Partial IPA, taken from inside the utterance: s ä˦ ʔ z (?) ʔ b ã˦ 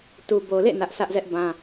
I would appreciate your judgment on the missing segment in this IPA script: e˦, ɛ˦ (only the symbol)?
ɛ˦